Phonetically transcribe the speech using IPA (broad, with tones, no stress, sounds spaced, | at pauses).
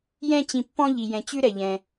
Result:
j ɛ̃˥ t͡ɕ ĩ˨ pː ɔ̃˦ ʎ i˩ j ɛ̃˩ t͡ɕ ʉ˥ ɾ ɛ˩ ʎ ɛ̃˩